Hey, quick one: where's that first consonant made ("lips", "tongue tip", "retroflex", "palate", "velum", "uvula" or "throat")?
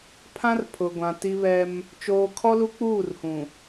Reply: lips